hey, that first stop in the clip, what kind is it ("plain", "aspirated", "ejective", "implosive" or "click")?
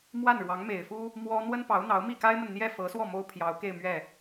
plain